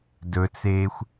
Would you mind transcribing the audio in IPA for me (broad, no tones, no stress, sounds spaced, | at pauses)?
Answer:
d ɵ t͡s eː xʷ